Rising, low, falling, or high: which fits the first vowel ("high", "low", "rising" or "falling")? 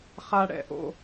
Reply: high